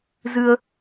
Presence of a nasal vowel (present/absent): absent